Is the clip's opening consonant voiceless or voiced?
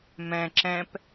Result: voiced